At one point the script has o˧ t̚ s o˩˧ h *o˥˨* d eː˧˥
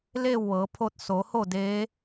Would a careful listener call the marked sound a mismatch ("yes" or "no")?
no